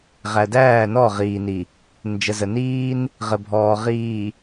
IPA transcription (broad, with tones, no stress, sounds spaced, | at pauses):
ʁ æ˨ d æː˦˨ n ɔ˦˨ ʁ iː˨ n i˨ | n d͡ʒ ə˨ z ə˨ n iː˦ n | ʁ ə˨ bʱ ɔː˨ ʁ iː˨